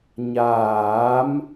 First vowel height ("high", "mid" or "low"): low